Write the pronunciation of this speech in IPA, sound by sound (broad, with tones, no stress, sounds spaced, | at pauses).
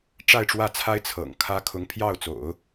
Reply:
ʈ͡ʂ a˥˧ ɪ̯ ʈ͡ʂ w ä˥˩ t͡sʰ a˥ ɪ̯ t͡sʰ ɤ̰˨˩ ŋ kʰ ä˥ kʰ ʊ˧˥ ŋ pʰ j ɑ˥˩ ʊ̯ t͡s o̰˨˩˦ ʊ̯